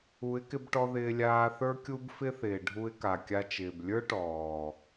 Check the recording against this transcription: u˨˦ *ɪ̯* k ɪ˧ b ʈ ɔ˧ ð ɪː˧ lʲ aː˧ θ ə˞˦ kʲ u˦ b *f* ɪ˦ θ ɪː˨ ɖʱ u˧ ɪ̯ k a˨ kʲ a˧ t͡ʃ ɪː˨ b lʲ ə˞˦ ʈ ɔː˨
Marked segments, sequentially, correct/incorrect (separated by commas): correct, correct